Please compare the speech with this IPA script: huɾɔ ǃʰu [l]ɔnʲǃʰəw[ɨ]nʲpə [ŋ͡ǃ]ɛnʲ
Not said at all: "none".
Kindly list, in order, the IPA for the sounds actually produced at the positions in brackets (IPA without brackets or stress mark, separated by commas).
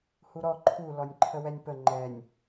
l, ɛ, ŋ͡ǃ